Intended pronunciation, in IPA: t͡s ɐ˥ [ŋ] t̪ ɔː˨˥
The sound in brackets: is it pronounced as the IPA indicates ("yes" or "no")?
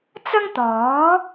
yes